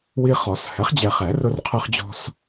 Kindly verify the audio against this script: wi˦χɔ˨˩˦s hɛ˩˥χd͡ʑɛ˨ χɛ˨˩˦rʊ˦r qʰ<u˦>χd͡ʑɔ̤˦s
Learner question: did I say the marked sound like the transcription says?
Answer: no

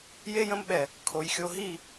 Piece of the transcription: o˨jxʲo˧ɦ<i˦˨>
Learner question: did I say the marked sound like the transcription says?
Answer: yes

